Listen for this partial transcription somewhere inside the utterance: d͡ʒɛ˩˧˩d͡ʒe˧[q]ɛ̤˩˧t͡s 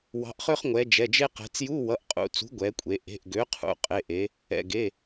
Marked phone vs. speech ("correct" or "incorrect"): correct